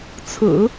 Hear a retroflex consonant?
no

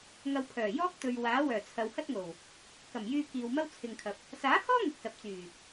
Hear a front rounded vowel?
yes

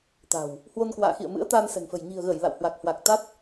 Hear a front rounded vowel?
no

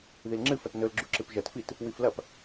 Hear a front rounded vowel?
no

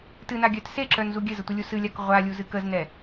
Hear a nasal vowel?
no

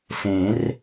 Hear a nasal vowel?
yes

